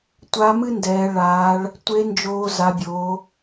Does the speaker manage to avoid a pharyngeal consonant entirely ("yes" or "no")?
yes